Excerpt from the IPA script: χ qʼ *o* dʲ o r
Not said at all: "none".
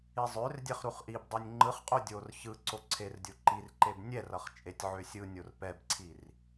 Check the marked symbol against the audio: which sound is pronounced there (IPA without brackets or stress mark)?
o